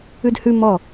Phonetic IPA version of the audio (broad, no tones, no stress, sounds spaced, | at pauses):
ʉ d h ʉ m ɔ